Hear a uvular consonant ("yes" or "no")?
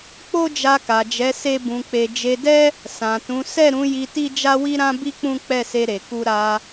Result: no